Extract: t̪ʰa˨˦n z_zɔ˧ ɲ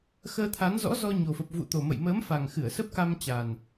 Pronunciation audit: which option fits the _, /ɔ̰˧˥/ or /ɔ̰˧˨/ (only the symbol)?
ɔ̰˧˥